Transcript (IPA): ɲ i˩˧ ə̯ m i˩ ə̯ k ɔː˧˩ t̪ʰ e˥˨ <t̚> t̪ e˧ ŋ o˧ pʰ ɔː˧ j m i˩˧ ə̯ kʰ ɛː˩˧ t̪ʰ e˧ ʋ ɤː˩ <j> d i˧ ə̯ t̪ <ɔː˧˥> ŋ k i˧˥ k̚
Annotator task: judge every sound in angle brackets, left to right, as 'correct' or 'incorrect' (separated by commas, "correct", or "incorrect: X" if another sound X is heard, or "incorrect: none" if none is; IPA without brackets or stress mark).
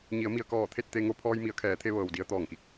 correct, incorrect: w, incorrect: ɔː˧˩